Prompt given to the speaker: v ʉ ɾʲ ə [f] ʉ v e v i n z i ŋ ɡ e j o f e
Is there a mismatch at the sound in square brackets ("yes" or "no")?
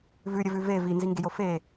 yes